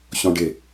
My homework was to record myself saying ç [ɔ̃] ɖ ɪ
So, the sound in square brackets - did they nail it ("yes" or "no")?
yes